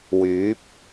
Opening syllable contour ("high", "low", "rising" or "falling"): rising